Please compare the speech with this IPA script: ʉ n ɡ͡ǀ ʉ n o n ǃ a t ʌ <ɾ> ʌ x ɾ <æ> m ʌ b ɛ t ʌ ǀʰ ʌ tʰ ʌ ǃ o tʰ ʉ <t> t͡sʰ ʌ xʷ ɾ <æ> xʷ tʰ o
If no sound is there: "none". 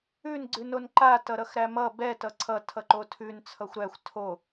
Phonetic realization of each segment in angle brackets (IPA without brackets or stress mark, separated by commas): ɾ, æ, n, æ